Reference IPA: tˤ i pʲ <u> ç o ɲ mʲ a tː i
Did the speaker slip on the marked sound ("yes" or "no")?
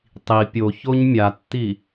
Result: yes